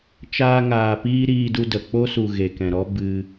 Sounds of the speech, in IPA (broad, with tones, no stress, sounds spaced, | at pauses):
t͡ʃ aː˧ ŋ aː˨ p iː˧ ɾ iː˧ d u˧ d ə˨ k͡p o˦ s u˨ ɣ e˨ k ɛ̃˨ ɾ ɔ˦ b ɨ˧